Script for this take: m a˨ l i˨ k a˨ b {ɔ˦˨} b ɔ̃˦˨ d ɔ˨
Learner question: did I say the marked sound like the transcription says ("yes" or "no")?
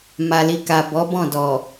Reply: no